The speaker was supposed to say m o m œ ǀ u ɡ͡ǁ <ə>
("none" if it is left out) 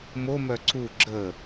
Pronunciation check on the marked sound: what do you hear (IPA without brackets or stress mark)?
ə